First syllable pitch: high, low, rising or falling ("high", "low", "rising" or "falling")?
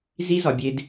high